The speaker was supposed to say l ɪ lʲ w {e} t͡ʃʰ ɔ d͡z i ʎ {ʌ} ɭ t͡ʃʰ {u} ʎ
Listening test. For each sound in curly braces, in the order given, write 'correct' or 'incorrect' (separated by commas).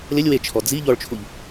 correct, incorrect, correct